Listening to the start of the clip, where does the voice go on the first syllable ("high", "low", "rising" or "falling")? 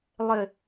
falling